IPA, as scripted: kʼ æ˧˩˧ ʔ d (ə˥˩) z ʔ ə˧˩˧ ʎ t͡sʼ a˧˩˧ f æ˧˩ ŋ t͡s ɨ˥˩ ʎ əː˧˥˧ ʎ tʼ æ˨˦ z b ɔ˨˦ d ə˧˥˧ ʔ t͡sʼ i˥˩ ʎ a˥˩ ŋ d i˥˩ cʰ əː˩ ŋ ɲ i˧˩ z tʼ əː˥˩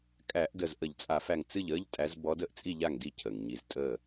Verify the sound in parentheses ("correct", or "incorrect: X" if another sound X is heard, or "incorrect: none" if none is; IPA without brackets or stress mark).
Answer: incorrect: ə˧˩